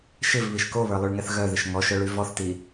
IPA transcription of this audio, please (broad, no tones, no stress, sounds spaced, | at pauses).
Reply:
ʃ ɪ v β i ʃ k o β ə˞ lˠ y ɭ ŋ ɛ θ ɣ œ ð ɪ ʃ ŋ ɔ ʃ œ ɭ y v ɔ θ t i